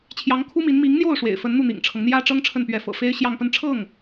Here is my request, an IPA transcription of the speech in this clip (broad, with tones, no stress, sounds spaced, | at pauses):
t͡ɕʰ j ɑ˧˥ ŋ kʰ u˥ m i˧˥ n m i˧˥ ŋ n̪ j o˥˩ ʊ̯ ʂ w ḛ˨˩ ɪ̯ f ə˧˥ n n̪ u˥˩ n̪ ḭ˨˩ ŋ ʈ͡ʂʰ ɤ˦ ŋ n̪ j ä˥ ʈ͡ʂ ɤ˥ ŋ ʈ͡ʂʰ ə˥˩ n p ɥ ɛ˧˥ f ɤ̰˨˩ f e˥ ɪ̯ ɕ j ɑ˥˧ ŋ p ə˥˧ n ʈ͡ʂʰ ɤ˥˩ ŋ